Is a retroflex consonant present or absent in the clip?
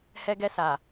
absent